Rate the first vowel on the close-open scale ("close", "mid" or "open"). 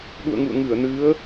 close